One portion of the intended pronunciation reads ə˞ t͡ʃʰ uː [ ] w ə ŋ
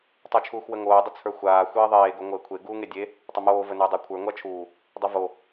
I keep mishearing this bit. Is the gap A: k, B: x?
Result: B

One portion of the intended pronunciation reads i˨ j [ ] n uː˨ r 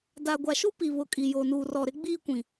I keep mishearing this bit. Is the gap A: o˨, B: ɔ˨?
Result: A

